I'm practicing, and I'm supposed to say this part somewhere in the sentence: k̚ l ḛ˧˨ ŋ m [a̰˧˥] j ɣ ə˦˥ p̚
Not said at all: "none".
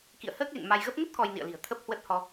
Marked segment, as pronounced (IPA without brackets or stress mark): a˧